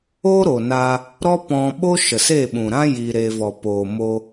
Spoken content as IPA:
o˦ ɾ o˨ n a˧ | ɾ ɔ˦ p ɔ̃˧ ɓ o˦ ʃ ə˨ s e˦˨ ɓ ũ˨ ɾ ã˦ j i˧ ɾ e˧ v ɔ˨ p oː˨ m o˧

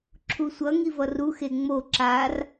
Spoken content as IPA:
ǁʰ u sʷ ʌ ŋ i v ʌ r u x e ŋ͡m o ǁ a r

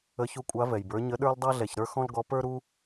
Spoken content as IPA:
ə˨˦ ç u˨˦ kʷʼ a˨˦ v ɛ˩ j b ə˞˨˦ ɲ ə˨˦ ɗ ə˞˦ l dˤ a˦ ɮ ɛ˩ ç ɾ ə˞˦ x ɔ̃˦ l ɡ ɔ˨˦ p ə˞˦ ɾ u˦

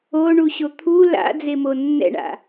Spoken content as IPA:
o ɳ u ɕ o t̪ʰ u l a̰ d͡z e m o nː ɛ̰ ɳ a̰

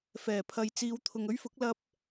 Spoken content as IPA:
f ɛː˨˩ pʰ ɐ˨ j t͡s iː˨˧ w t̪ʰ ʊ˨ ŋ ɵ˥ ɥ f ʊ˨˥ k̚ l ɐ˥ p̚

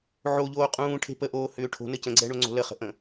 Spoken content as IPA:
ʕ o ʎ oː qʼ ũː ʈʰ e̤ p ə ʔ oː h ʏː ʈʰ o̤ n ə c ə̃ ɡ͡ǀ ɛ ɳ o ŋ͡ǀ o̤ l ə χ ə̤ ʔ ə̃

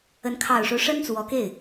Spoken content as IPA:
ə˧˥ n kʰ ɑ˨˩ ʊ̯ ʂ o˦ ʊ̯ ʂ ə˥ n t͡s w ɔ˧˥ k e˥˩ ɪ̯

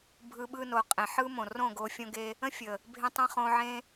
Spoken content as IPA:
bʱ ɯ˧ ɓ ɯ˧ n o˨ qʼ ẽ˨ ħ ɯ˦ m õ˨ r õ˦˨ ɡ o˧ fʲ õ˦ ɡ e˦ | ə̃˦ fʲ ə˨ | bʱ ẽ˧ tˤ ə̃˧ χ õ˧ ʕ ẽ˦

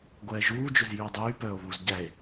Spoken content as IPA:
ɡʷ ɛː ʒ uː d͡ʒ ɵ z j yː dˤ yː p œː o̯ β u z ɟ æ e̯

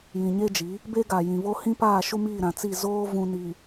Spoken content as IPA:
j ĩ˨ ɲ e˦ d͡ʒ i˨˦ | b e˦ ɡ a˨ j ĩ˨ β o˦ h ĩ˦ p aː˦˨ ʃ u˦ m iː˦˨ ɾ ã˨ t͡s i˦˨ z oː˦ v ũ˦ n i˨

